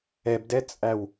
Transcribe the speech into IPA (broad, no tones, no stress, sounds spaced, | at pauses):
ɛ b d ɛ t͡sʼ æ w